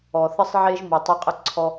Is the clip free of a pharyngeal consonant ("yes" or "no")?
no